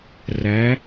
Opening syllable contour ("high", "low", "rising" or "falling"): rising